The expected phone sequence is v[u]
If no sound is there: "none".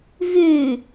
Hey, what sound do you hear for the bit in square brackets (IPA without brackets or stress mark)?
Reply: ʉ